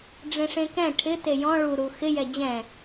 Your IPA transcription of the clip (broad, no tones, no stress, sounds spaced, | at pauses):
ɖ͡ʐ ẽ ʂ ẽ k ɛ̃ ʈʰ ɪ t e j ɔ̃ ɭ u ɾ u x ɪ j ɛ d͡ʑ ɛ̃